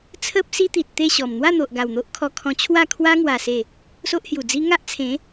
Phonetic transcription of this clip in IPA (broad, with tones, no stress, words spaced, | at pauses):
t͡sʰə˦p̚si˦t̪i˨t̚ t̪e˥˧ɕɔ˨˩m n̪wa˥˧n̪o˨ʔɡa˨˩w n̪o˦ʔkʰɔ˧kʰɔ̃˧ t͡ɕʰwa˥˧kʰwa˦ŋwa˨˩ se˨˩ | so˦ʔhju˨˩d͡zi˦ ŋa˦ʔt͡sʰẽ˨˦